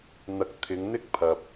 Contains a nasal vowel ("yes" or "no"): no